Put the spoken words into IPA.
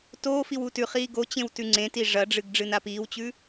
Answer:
t oː f i w u t ʉ χ iː ɡ o t͡ɕ ẽ w t ʉ ŋ͡ǀ ẽ t i ʐ ɐ ɖ͡ʐ ɨ ɡ ɖ͡ʐ ɨ n a p iː w t͡ɕ ʉ

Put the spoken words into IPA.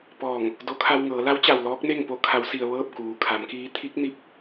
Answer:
p ɔː˧˩ ŋ | d o˧˥ kʰ a˧ w ŋ ɤː˩˧ l a˧˥ w t͡ɕ a˩ w l ɔː˧˥ k̚ n e˥˨ ŋ p o˧˥ kʰ a˩˧ w s i˩ ə̯ ʋ ɤː˥˨ p̚ k uː˩ kʰ a˩˧ m k iː˧˥ t̪ʰ i˧˥ k̚ n i˧ p̚

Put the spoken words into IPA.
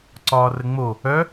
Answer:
ǀ ɒː r ə ŋ͡m o | œ

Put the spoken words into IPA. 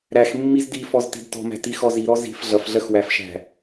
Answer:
ɾ æ x mː i z d i f ɔ z t i̤ d t ɔ̤ m æ̤ t i x ɔ z i ɾ ɔ z i̤ f ɮ ʌ f ɮ ɜ x w æ f ʃ æ̤

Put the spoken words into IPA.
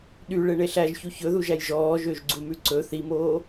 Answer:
ɗ y ɭ e ɳ e ɬ æ ʒ ç u ç ɵ ð u ʒ æ j ʒ ɔː ʒ ø ʒ ɡ͡ǀ u m ʉ ǀ ɵ θ i m oː

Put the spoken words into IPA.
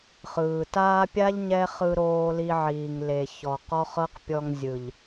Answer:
χ ɯː˨ t aː˧ pʲ a˦ ʎ ɲ ɛ˦ χ ɯ˧ ɾ oː˧ l i˧ ʕ iː˨ ŋ l e˨ ç ɔ˨ q ɔ˦ χ ɤ˦ q pʲ ɔ˧ ŋ zʲ ɯ˨ ʎ

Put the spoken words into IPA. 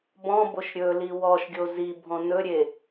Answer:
b ɔ̃ b o ʃ ɾʲ ɵ l i w ɔ ʃ ɡʲ o z i bʱ ɔ̃ n ɵ ɾʲ e

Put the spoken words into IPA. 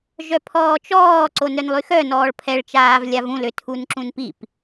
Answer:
ʒ œ pʰ ɔː t͡ʃ ɔː ǀ o n œ n lˠ y x œ n ɔː ɭ pʰ ɛ ɭ t͡ʃ aː v lʲ a v ũ l ø tʰ u n ǁ ũ n p i p

